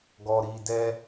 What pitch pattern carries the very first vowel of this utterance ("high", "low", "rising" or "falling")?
low